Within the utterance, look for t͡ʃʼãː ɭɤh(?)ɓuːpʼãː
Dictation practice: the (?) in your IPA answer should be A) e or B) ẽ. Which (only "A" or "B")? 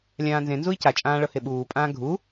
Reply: A